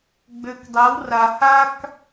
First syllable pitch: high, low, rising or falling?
low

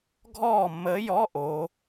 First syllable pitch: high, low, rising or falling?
falling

